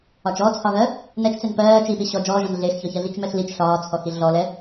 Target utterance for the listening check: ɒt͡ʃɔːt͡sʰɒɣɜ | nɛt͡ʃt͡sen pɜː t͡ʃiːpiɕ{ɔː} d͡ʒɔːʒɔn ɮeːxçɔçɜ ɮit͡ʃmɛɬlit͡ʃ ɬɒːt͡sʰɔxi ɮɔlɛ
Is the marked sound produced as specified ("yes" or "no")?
no